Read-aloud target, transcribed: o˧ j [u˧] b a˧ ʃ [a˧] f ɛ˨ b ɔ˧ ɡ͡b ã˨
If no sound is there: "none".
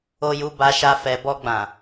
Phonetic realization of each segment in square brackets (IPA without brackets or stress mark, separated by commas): u˧, a˧